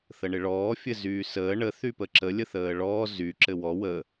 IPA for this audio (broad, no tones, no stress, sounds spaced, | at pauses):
θ ə ɳ ɪ ɭ ɔː fʲ ɘ z yː s əː ɳ ə θ y p ə ǁ ə lʲ ə θ əː ɭ ɔː z y ǁ ɘ w ɔ w ə